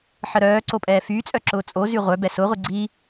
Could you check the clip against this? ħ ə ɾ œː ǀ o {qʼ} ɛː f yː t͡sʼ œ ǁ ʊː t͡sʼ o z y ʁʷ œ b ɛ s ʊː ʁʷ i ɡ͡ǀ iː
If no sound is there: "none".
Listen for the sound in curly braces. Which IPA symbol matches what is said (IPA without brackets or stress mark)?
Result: pʼ